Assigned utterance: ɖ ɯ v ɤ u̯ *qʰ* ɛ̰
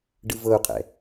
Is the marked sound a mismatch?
no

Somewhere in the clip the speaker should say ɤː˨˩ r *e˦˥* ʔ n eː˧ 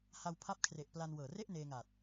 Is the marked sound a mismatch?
yes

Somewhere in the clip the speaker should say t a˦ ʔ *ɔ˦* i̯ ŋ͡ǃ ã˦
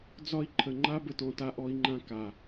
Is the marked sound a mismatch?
no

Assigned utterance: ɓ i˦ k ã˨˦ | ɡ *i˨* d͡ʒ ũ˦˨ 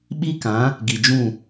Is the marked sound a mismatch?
no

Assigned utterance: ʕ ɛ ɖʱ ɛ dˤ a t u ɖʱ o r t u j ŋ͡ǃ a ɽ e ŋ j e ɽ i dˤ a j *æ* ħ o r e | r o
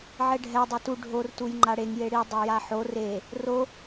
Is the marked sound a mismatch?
yes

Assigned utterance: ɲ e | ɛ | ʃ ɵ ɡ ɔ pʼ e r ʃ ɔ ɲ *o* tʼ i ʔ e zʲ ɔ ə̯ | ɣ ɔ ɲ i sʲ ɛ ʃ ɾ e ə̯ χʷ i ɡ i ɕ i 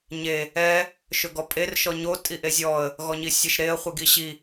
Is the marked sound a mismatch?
no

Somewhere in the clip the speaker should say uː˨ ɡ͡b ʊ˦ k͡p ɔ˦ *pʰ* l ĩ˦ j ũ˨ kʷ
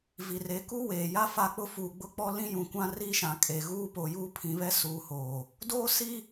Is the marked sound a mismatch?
yes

